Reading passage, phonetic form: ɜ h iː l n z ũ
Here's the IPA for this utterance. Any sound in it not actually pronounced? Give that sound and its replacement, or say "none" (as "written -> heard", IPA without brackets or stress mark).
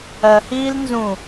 none